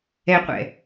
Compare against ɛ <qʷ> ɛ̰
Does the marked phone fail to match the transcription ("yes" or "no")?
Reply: no